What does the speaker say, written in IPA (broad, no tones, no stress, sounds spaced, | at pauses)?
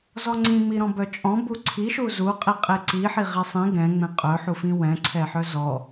z ɔ ŋ͡ǀ ĩ ŋ͡m i ɾ ɔ̃ b œ t͡ʃʼ ɔ̃ b u ǀʰ i ʃ u z u qʼ i qʼ e ǀ i ħ i ʁ i sˤ ĩ ɡ ɛ̃ ŋ͡m ẽ qʼ œ ħ u f ĩ w ɛ̃ ǀʰ ɛ ħ œ z ɔ